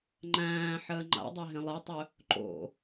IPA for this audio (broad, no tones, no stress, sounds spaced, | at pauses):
ŋ͡ǃ æ̃ː ħ əː ŋ͡ǃ a̰ dˤ e ɦ ẽ lˠ e tˤ ɵ | ǃ o̰